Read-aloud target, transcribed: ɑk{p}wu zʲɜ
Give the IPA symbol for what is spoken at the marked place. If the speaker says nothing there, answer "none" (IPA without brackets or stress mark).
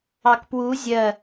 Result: p